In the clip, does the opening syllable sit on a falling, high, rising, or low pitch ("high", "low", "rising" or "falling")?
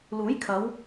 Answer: rising